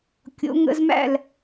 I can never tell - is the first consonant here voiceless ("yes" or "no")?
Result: yes